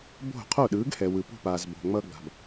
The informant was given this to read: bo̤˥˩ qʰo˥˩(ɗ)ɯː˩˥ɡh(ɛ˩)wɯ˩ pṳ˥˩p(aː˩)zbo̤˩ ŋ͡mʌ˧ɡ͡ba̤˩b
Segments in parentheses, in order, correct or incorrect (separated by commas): correct, correct, correct